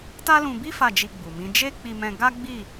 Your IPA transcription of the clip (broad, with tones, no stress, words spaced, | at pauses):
ta˦lũ˧bi˦ fa˦˨d͡ʒi˧ɡ͡bu˨mĩ˨˦ d͡ʒe˦k͡pi˧mɛ̃˧ ɡa˦ɡ͡bi˦˨